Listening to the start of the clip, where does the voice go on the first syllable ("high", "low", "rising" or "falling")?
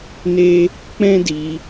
high